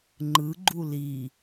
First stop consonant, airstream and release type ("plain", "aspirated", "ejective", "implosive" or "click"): click